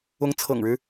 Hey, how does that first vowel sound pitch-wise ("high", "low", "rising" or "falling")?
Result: rising